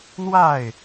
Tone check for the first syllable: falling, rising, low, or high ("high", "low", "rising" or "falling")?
falling